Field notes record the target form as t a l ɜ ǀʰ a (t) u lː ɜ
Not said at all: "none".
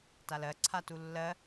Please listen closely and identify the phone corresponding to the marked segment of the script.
t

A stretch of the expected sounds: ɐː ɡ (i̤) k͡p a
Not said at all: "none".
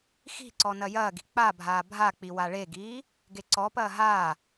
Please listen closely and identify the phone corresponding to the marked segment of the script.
i̤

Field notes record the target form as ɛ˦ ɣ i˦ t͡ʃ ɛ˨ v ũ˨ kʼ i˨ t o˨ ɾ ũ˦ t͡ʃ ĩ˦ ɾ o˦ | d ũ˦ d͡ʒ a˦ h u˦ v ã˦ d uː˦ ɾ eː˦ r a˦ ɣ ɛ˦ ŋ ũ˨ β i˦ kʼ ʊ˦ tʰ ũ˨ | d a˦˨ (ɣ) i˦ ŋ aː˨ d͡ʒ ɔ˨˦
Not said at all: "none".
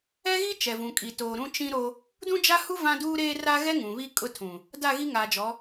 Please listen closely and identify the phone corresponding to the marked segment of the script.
ɣ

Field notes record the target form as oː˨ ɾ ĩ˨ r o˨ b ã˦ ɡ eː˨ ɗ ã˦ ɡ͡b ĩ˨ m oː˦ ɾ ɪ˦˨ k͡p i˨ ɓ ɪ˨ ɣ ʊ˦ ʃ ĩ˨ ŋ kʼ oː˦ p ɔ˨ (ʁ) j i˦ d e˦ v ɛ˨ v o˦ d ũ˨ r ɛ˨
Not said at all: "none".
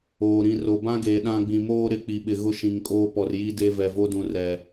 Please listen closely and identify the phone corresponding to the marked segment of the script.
r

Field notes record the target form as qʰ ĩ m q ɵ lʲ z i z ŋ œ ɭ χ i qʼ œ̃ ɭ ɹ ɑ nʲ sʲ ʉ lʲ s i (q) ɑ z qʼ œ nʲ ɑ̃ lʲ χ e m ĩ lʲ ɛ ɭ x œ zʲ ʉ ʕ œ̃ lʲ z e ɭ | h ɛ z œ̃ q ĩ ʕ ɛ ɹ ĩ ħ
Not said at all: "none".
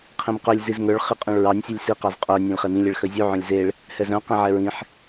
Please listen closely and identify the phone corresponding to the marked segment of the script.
q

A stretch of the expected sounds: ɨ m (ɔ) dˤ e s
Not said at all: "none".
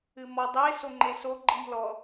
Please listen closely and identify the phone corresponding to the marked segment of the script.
ɔ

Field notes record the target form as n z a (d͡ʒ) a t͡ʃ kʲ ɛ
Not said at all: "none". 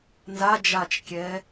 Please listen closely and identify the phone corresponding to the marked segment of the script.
d͡ʒ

